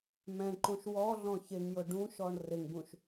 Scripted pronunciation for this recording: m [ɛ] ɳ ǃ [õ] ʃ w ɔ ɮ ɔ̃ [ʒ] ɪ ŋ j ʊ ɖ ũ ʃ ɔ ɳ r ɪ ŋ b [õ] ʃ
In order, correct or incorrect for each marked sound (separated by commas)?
incorrect, correct, incorrect, incorrect